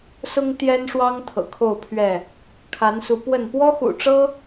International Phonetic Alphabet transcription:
s ʊ˦ ŋ t̪ j ɛ˦ n ʂ w ɑ˦ ŋ t̪ʰ ɤ̰˨˩ kʰ o˥˨ ʊ̯ pʰ ɥ ɛ˥˨ | kʰ a˨˦ n s u˨˦ p w ə˥˨ n p w ɔ˦ x ṵ˨˩ ʈ͡ʂ ɤ˦

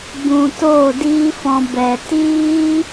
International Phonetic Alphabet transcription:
b ũ˨ t oː˦˨ d iː˦ f ɔ̃˧ b ɛ˨ t iː˦

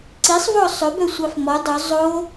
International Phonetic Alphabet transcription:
ǀ i sˤ v ɔ sˤ ɵ b œ sʷ ɑ f m ɔ dˤ ɵ zˤ o

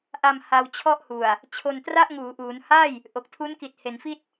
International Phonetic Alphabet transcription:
ʔ a˧ m h a˧ w t͡ɕʰ ɔ˥˩ ʔ h u˨˩ a̯ | t͡ɕʰ o˧ n t r a˥˩ ʔ ŋ uː˩˦ ʔ uː˩˦ n h aː˥˩ j | ʔ o˨˩ k̚ tʰ u˦˥ n k i˨˩ t̚ h e˩˦ n f i˥˩ t̚

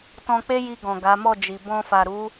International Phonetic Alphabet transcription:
t ɔ̃˧ k͡p e˦ j i˧ ɡ ɔ̃˨ ɡ a˨˦ m ɔ˦˨ d͡ʒ i˨ b ɔ̃˧ f a˨ ɾ u˨˦

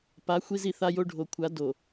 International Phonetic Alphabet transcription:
p a˨˦ xʷ i˦ z i˨ θ a˦ j o˦ ɖʱ o˨ kʷʰ a˨˦ d o˨

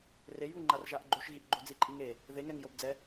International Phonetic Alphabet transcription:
r e j β u ŋ͡ǃ a r ʒ a ʔ ɡ͡ǃ o ʃ ɣ i ʔ ɡ͡ǃ o d͡z i ǃʼ i ŋ e | ð e ŋ ɛ ŋ j o b d͡z ɛ

